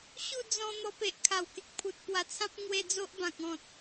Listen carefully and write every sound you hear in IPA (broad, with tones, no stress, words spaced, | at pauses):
ɕu˥˧d͡zɔ̃˧ n̪ɔ˧pe˨ʔkʰa˨˩w ke˨k̚pʰu˨t̚pwa˨˩t͡sʰã˦p̚ ŋwe˧ d͡zo˦ʔbã˨k̚ ɔ̃˨t̚